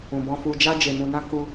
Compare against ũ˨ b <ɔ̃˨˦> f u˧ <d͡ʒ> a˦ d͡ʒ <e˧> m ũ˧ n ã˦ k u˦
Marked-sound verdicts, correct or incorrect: incorrect: ɔ̃˧, correct, correct

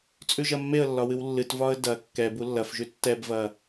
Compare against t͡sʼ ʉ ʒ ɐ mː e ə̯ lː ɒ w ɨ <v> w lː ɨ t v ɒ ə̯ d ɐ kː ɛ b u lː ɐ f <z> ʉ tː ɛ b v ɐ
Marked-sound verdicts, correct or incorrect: incorrect: none, incorrect: ʒ

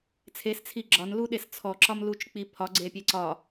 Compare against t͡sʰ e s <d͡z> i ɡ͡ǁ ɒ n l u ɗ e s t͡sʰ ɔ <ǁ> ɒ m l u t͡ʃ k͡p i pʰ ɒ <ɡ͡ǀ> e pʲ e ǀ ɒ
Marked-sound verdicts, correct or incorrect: incorrect: t͡sʰ, correct, correct

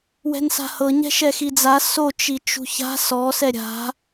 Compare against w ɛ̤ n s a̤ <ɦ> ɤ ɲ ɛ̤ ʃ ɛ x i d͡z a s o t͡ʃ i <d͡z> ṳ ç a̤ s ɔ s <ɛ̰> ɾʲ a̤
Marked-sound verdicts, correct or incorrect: incorrect: h, incorrect: t͡ʃ, incorrect: ɛ

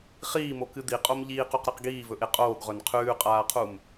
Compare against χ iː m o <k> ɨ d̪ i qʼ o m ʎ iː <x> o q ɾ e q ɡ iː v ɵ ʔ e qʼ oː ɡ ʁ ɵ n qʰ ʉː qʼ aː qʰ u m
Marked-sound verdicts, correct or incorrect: correct, incorrect: q

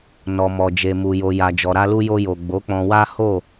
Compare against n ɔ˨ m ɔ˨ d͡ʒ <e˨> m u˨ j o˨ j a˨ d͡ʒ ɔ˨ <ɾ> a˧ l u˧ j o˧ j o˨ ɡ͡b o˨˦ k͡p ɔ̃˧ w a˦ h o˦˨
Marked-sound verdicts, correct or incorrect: correct, correct

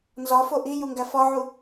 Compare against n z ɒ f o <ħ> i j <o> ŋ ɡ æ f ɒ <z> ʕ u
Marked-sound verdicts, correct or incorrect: incorrect: ʔ, incorrect: u, incorrect: none

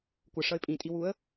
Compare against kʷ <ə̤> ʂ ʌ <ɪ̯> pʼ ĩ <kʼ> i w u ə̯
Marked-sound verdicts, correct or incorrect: incorrect: ə, correct, incorrect: tʼ

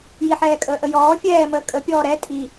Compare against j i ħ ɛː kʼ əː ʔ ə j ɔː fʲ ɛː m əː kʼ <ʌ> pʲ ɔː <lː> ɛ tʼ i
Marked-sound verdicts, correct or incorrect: incorrect: ə, incorrect: ɾ

